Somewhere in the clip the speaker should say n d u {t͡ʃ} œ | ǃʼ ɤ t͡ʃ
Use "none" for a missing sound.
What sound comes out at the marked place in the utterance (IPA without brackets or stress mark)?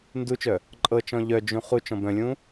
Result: t͡ʃ